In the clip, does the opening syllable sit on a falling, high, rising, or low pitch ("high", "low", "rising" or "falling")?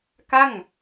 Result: falling